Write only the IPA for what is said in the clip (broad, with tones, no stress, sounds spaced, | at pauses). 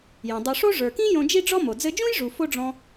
j õ˩ dˤ u˩ ʂ o˥ ʐ ə˞˩ k ĩ˥ j õ˧ d͡ʒ i˥ ɖ͡ʐ ɔ˥ m o˩ d͡z ɘ˧ d͡ʒ ũ˥ j ʐ u˩ f o˥ ɖ͡ʐ ɔ̃˧